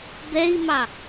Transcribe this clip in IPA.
b ɛ i̯ m ɑ

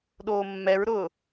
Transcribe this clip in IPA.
ɗ oː mː ɛ ɹ ɾ ʊː

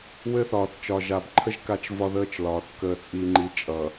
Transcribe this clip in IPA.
w ɘ˦ θ ɒː˨ θ t͡ʃ ɒ˨ ʒ a˨ b ǃʰ ə˦ ʒ k a˦ t͡ʃ v ɒ˦ ð əː˦ t͡ʃ l ɒː˨ θ k əː˨ t͡sʼ i˨ ŋ͡ǃ i˨ t͡ʃʼ ʌ˨

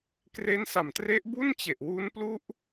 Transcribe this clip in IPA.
k r e˦˥ n s a˨˩ m t r e˦˥ ʔ b u˥˩ n t͡ɕ e˨˩ ʔ w u˦˥ n p l u˦˥ ʔ

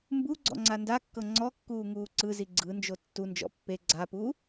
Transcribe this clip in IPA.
m b u ɡ͡ǀ ɔ̰ ŋ͡ǀ a n d a kː ɤ ŋ͡ǀ ɔ kː uː ŋ uː ǀ ɯ z i ɡ͡ǀ ɯ n d͡ʒ o tː u n d͡ʒ ɔ̰ pː e ɡ͡ǀ a p u

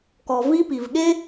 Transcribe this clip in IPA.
k ɔ˩ v i˦ p i˩ v ɠ e˥

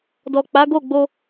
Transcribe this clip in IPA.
d ɔ˨ k͡p a˨˦ ɡ o˦˨ ɡ͡b o˧

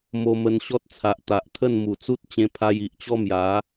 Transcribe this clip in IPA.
m o˧ m ə˧ n ɕ ɔ˦ t̚ t͡sʰ a˨ ʔ t̪ a˨ ʔ t̪ʰ ə˥˧ n m u˨˩ t͡s u˦ t̚ t͡ɕ ẽ˦ pʰ a˦ j i˨ ʔ t͡ɕ ɔ˦ m j a˨˦

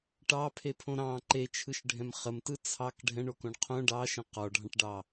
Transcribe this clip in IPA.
ʈ ɑ pʰ e pʰ õ ɾ ɑ̃ ǃ e t͡ʃʰ ɯ ʃ ɖʱ ɛ̃ m χ ə m t ɯ t͡sʰ ɑ k ɖʱ ɛ̃ ɳ o k õ ɳ qʰ õ ɖ ɑ ʃ ə̃ q ɔ ɖʱ ɑ̃ ʈ ɖ ɑ

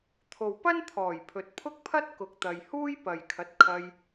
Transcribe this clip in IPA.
t̪ʰ o˨ w p ɐ˥ n t̪ʰ ɔː˨˩ j pʰ ɵ˨ t̚ pʰ ʊ˥ k̚ pʰ ɐ˥ t̚ k ʊ˨ k̚ t̪ ɐ˨ j h uː˥ j p ɐ˨ j kʰ ɐ˨˥ t̚ kʰ ɐ˧ j

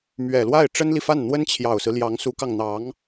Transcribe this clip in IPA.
m ɥ ɛ˨˩ l w a˥˩ ɪ̯ ʈ͡ʂ ə˥ n l i˨ f a˥˩ n n̪ w ə˥ n t͡ɕʰ j ɑ˨˩ ʊ̯ s ɹ̩˦ l j ɑ˧˥ ŋ s u˧˥ k ɑ˧ ŋ n̪ ɑ˧˥ ŋ

